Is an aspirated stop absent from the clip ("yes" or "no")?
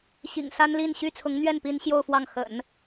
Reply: no